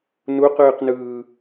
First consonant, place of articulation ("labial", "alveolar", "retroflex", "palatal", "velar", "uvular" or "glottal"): alveolar